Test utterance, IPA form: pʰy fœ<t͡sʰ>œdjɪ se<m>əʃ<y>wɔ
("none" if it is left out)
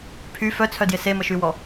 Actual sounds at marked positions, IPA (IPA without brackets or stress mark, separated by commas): t͡sʰ, m, y